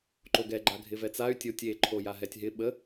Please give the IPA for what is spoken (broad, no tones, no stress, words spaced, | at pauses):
ǃoɡɛɡ͡ǃa ɡʱɪvɛt͡say̯ tʲotʲ e ǃʰojaɦɛtʲɦɪ ɓə